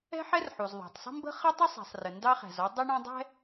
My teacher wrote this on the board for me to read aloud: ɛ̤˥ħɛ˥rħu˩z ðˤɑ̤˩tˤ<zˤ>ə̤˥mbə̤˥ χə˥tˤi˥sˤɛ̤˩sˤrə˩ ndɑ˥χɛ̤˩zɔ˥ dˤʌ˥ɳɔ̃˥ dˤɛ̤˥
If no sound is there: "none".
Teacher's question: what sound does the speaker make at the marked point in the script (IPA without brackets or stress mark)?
sˤ